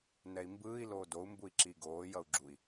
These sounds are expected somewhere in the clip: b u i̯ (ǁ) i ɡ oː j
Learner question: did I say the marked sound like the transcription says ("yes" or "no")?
yes